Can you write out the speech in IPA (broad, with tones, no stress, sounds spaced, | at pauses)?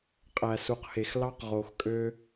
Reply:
qʼ æ˨ s u˨ q h e˨ x l ɑ˦ q ʁ o˨ x kʼ ø˦